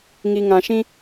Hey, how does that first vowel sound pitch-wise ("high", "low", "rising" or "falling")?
low